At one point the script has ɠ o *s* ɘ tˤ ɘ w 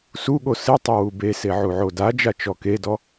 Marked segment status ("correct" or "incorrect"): correct